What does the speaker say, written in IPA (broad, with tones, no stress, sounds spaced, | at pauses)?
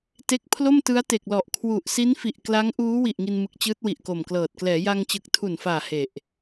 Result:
t e˦˥ k̚ pʰ l o˥˩ m t ɯ˦˥ a̯ t e˨˩ k̚ l ɔ˨˩ ʔ kʰ w u˨˩ ʔ s i˦˥ n f i˨˩ ʔ k l a˦˥ ŋ ʔ uː˦˥ w i˨˩ ʔ ŋ i˧ n m ɯ˨˩ k̚ t͡ɕ ɯː˦˥ t̚ w i˨˩ ʔ k o˨˩ m k l ɤː˨˩ t̚ k l ɛː˩˦ j a˧ ŋ t͡ɕ ɯ˨˩ k̚ tʰ u˨˩ n f aː˨˩ h e˨˩ ʔ